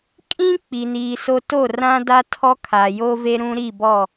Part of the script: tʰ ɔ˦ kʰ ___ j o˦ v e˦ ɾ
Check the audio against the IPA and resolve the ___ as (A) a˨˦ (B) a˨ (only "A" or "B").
B